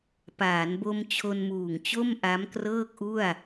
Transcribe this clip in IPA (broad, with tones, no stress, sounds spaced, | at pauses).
p aː˩˦ n b o˧ m t͡ɕʰ o˧ n m uː˨˩ ŋ t͡ɕ o˥˩ m ʔ a˦˥ m k r ɤː˥˩ k̚ ʔ u˥˩ a̯